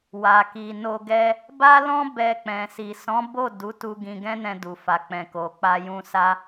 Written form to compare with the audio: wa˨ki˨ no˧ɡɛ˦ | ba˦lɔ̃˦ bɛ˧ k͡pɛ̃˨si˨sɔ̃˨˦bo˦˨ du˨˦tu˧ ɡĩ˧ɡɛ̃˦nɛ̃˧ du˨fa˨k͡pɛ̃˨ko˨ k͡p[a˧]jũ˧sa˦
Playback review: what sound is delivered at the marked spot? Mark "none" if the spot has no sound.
a˧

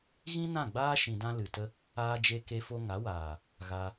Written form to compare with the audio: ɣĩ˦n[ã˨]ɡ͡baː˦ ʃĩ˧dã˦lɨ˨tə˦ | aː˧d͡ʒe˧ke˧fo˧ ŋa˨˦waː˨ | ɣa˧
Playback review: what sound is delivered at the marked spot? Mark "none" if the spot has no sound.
ã˦˨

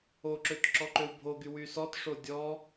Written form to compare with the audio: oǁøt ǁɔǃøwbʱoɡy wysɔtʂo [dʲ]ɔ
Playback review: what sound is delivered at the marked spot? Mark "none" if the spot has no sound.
dʲ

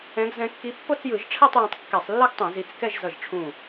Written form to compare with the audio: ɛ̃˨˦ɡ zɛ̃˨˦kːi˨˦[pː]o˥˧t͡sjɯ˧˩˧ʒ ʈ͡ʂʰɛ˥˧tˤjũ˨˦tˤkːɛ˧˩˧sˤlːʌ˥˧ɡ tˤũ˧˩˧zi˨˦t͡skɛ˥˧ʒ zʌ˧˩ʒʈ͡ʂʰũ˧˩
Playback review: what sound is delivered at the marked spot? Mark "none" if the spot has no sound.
pː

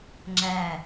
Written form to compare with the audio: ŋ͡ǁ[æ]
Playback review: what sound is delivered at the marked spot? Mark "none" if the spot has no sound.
æ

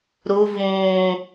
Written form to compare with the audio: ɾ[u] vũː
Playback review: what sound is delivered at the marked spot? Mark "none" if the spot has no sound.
u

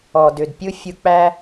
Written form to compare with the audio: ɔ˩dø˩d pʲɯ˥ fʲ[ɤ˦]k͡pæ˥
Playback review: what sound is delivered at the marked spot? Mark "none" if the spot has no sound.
ɯ˦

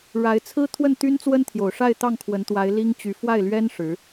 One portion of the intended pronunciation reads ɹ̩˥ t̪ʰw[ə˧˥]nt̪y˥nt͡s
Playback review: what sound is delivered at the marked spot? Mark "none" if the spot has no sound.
ə˥˩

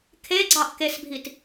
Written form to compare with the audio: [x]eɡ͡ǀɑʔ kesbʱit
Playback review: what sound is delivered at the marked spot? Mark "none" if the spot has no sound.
kʰ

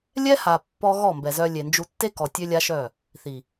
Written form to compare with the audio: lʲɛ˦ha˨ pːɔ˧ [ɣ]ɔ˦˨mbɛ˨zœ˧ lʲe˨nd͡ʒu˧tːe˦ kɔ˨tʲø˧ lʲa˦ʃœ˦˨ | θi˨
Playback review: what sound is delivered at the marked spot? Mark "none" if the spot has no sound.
ɣ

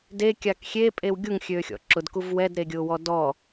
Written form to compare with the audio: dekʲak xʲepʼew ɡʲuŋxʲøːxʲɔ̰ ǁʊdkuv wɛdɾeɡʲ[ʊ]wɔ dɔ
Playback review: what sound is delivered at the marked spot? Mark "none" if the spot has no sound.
ʊː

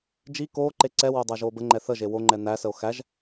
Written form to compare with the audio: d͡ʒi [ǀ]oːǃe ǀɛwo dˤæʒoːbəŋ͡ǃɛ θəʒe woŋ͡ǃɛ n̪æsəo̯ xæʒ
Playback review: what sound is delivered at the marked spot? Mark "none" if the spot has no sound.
k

